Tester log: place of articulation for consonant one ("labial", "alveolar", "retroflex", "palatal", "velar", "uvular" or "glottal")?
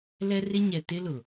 alveolar